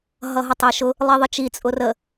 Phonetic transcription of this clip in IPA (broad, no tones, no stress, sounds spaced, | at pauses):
ɦ ʌ ɦ ʌ tˤ ɛ ʃ ʊ | lˠ i ðˤ ə t͡ʃ i t͡sʼ ʊ r ə